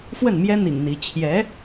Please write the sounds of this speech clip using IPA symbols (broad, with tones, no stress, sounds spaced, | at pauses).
f w ə˥˩ n m j ɛ˥ n̪ ḭ˨˩ ŋ n̪ i˧˥ t͡ɕʰ j ɛ˧˥